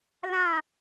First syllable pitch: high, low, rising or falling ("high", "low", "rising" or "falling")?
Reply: falling